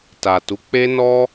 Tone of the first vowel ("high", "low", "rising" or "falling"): low